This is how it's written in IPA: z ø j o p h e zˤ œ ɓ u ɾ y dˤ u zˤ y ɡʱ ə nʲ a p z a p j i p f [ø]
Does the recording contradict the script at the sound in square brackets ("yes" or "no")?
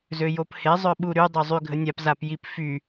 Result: yes